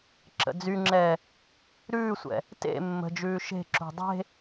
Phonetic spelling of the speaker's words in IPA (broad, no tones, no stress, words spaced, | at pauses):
ǁə̰d͡zyŋ͡ǁɛː | ɾʉːsʷɛ̰ | tḛ mːə̤d͡ʒʉː ʃe̤ǁṳ dˤe̤